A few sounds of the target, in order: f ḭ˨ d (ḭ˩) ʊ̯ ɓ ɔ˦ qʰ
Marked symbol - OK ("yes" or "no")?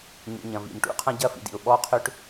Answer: yes